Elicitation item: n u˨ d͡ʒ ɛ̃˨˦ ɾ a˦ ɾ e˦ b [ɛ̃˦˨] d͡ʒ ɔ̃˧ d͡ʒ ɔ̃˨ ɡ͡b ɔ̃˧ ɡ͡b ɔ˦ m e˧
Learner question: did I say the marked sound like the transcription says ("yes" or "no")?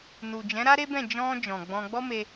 yes